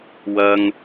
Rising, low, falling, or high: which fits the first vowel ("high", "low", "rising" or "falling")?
high